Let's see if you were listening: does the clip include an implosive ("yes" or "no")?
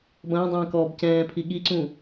yes